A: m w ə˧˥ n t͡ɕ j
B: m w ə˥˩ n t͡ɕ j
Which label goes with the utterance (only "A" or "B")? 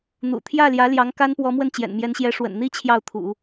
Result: B